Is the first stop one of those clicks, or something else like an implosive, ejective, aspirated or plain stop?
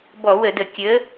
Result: plain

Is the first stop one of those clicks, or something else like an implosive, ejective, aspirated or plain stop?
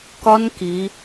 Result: plain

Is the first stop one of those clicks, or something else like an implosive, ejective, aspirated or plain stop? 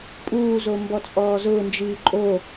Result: ejective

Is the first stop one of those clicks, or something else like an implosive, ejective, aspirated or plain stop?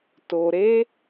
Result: plain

